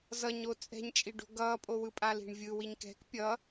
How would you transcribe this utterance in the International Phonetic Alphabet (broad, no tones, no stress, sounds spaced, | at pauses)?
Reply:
z ʌ ɲ o t͡sʼ ɛ̤ ɲ t͡ʃʼ i ɖ o̤ ɡ ʌ pʼ o w ɯ pʼ a l i̤ ɳ vʲ ɯ w i ɲ k ɛ̤ k pʲ ʌ